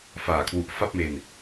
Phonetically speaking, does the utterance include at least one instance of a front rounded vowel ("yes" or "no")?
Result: no